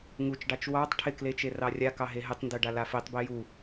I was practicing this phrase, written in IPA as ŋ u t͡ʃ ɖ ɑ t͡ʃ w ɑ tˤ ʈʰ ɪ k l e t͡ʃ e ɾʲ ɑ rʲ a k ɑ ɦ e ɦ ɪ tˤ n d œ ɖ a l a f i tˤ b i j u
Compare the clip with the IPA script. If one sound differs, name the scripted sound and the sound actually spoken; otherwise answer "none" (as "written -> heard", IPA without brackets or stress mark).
ɾʲ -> r